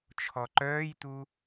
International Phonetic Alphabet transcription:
t͡ʃʰ ɔ ǃ œː j t̪ u

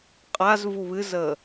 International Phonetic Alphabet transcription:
qʼ a z v u β ɨ z əː

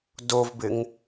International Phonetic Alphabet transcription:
d o v b ɪ ŋ

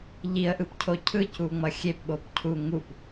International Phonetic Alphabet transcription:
ʎ i ə̯ ʔ ɯ p cʰ o cʰ ɯ c u ŋ͡m ʌ xʲ e p ɓ o p cʰ u ŋ u p

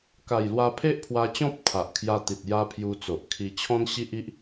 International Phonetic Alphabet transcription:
k a˨˩ j l w a˧ pʰ e˦ ʔ pʰ w a˧ t͡ɕ ɔ̃˦ p̚ t̪ʰ a˨ ʔ kʰ j a˧ t̪ i˨ t̚ j a˧ pʰ j u˧ t͡s o˨ ʔ kʰ i˧ t͡ɕʰ ɔ̃˦ n ɕ i˦ ʔ i˦ ʔ

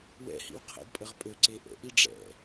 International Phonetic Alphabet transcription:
w ɛ̰ h ḭ w qʰ ɛ̰ d pʼ ə ʁ pʼ ø ǀ e ʔ ə̰ ʔ i ɖ͡ʐ ɛ̰

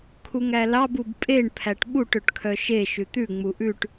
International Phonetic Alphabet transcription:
kʰ u ŋ æ l ɑ b u b pʼ e ɳ pʰ æ ʈ ɓ u ʈ ø ʈ kʰ œ ʃ e ʃ ʉ t̪ ʉ ŋ͡m u ʔ ʉ ʈ

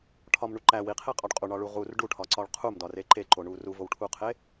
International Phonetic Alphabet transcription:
ʈʰ ɒ m ɳ u ǃ æ w i qʰ e qʼ ɒ ɖ qʼ u ɳ ɒ ɭ u ʁ u r ɖ u ʈʰ ɒ ǀ ɒ ɭ qʰ u m d ɒ r e ǃ e ǃ o ɳ u r u v o w ʈʰ u qʰ e

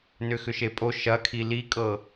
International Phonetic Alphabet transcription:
n ʏ x ʏ ʃ e pʼ o ʃ ɐ kʰ i l i kʼ ɤ

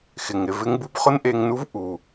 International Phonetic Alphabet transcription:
x ɪ˩ ŋ ɾ ɪ˨ v ɪ˦ ŋ b u˦ b χ ʊ˦ n ʔ e˨ ŋ n u˦ v ʔ u˩

